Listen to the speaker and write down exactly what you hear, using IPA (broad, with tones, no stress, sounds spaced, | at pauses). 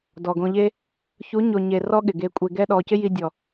d ɔ˨ ɡ õ˧ ʎ e˦ | ç u˨˦ ɲ o˨ ɲ e˨ r ɔ˦ ɠ ɪ˨ ɡ e˧ kʷʼ e˧ ɡ ɛ˦ ɗ ɔ˧ c ɪ˦ j i˧ dʲ ɔ˨